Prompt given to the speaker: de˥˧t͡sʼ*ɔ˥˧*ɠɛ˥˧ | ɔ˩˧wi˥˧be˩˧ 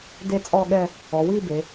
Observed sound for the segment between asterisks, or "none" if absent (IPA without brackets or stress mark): ɔ˥˧